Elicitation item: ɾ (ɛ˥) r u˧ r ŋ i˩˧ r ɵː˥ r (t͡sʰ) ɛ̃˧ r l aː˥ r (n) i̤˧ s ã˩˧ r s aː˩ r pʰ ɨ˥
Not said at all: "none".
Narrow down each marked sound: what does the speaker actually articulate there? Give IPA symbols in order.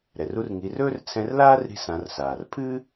ɛ˩, t͡sʰ, ɾ

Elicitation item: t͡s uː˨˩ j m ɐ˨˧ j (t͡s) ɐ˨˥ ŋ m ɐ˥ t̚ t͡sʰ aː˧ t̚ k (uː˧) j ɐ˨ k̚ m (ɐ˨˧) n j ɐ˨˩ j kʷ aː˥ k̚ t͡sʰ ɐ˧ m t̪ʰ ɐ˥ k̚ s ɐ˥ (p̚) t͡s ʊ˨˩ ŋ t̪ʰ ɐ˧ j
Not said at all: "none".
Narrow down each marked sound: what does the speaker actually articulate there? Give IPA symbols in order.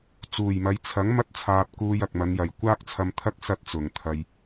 t͡sʰ, uː˧, ɐ˨˧, t̚

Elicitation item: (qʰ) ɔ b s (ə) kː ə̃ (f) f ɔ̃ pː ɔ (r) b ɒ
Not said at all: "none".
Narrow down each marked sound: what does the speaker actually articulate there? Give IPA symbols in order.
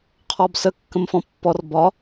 qʰ, ə, m, r

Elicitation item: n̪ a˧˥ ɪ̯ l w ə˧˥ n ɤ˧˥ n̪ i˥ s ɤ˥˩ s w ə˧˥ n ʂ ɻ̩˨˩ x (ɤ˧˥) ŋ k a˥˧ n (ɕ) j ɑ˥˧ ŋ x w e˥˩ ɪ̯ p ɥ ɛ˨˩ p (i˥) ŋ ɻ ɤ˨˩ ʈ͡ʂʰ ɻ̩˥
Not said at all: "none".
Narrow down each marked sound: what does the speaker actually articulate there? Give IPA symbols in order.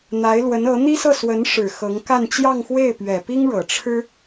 ɤ˧˥, t͡ɕ, i˥

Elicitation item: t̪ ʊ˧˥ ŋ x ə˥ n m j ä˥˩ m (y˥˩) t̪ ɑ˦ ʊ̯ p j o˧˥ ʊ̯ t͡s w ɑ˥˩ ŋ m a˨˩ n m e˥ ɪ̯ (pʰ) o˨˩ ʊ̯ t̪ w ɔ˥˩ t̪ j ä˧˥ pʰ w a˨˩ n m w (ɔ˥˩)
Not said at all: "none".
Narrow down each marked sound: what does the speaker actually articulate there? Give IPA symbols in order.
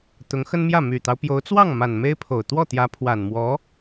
y˨˩, pʰ, ɔ˧˥

